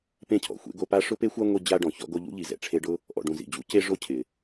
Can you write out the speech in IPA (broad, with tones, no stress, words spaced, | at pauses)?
pẽ˦cʰɔ̰˩xʷḛ˦ɡo˦ pa˦ʂʊ˥pe˥xʷa˥ ŋʷi˦ d͡ʑa˥ɖɔ̃˨ çɔ̰˦ɡo˦ ʎṵ˥ʎi˨ zɛ̰˩ʈ͡ʂʰe˦ɖʊ˥ | ʔɔ̰˨ɖũ˨zḭ˩ d͡ʑṵ˥ ce˥ʐo˥cʰɪ˩